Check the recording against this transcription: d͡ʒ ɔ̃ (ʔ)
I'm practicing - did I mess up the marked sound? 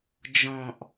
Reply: no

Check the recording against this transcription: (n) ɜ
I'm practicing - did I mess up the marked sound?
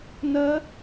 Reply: no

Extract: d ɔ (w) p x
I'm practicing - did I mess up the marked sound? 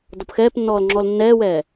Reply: yes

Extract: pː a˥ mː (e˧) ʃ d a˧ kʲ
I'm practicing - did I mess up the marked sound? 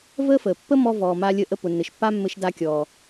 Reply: yes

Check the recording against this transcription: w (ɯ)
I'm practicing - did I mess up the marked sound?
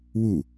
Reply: yes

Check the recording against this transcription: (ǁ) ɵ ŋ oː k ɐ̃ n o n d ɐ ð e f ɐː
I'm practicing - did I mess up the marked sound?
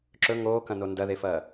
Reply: no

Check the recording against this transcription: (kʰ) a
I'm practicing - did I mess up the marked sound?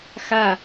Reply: yes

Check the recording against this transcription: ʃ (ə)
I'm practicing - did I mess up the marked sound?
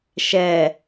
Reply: yes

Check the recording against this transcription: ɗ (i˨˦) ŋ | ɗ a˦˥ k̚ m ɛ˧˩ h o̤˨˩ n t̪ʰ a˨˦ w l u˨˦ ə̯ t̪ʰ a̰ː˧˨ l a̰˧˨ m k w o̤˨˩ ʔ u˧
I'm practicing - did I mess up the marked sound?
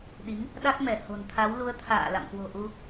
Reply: no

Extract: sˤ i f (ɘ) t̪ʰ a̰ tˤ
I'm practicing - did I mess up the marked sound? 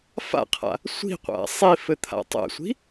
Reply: no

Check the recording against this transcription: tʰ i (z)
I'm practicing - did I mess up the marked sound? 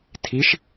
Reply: yes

